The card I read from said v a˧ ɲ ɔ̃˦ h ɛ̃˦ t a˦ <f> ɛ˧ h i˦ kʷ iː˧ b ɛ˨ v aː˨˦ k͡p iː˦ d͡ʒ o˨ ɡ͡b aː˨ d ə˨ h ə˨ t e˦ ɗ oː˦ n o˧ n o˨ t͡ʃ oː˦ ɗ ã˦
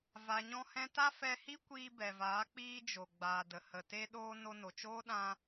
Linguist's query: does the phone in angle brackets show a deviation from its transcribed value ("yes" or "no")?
no